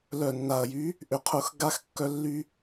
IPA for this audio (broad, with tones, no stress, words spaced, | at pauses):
lœ˨˩nːa˨˩ɐ̯jy˨˥ | ʔʏ˨˩qʰʊ˧˩˧x ɡa˧xkːœ˧ lːy˧